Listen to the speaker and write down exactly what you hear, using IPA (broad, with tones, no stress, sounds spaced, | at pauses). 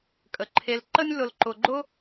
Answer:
kʼ ə˩ ǃʰ e˨ l ǃ ə˦ nʲ l ʊ˨ l ǃ ʊ˨ ɡ͡ǃ ʊ˥